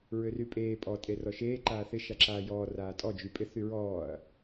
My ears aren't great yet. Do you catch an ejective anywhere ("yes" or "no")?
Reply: yes